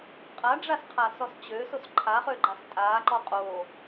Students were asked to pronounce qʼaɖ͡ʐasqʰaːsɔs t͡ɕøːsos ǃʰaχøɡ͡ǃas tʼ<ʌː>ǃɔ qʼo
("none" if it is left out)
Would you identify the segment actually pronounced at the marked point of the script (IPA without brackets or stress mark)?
aː